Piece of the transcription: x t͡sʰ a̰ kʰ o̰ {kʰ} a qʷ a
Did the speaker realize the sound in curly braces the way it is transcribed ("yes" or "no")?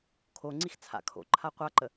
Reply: no